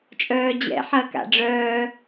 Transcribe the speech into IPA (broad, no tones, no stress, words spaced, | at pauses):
t͡ʃʼœːd͡ʑɛ̰ ħɐːka̰ɖ͡ʐœː